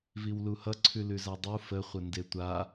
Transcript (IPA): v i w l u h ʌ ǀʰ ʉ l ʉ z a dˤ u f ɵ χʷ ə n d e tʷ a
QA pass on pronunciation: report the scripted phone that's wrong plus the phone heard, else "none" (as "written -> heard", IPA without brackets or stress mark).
ɵ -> ə